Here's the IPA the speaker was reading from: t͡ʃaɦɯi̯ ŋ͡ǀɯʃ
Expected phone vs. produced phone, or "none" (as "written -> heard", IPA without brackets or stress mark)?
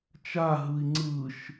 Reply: none